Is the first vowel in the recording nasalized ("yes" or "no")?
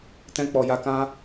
yes